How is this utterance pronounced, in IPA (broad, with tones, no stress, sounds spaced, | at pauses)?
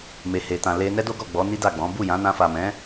m e˨ h e˨ t ã˨ l e˧ n ɛ˦ d o˦ ɡ ɔ˦˨ ɡ͡b ɔ˨˦ n i˦ d a˦˨ ɡ͡b ɔ̃˨˦ b u˦˨ j ã˨˦ n ã˧ f a˨ m ɛ̃˨˦